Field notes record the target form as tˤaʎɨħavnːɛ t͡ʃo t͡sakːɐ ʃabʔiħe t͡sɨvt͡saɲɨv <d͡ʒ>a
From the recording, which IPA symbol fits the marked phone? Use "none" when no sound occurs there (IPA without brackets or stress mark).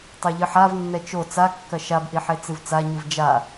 d͡ʒ